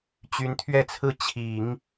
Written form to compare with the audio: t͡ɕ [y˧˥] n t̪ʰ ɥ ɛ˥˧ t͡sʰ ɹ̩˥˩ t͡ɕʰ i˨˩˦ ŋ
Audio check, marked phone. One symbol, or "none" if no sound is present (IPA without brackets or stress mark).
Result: y˧˥